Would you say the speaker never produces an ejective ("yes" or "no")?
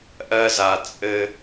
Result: no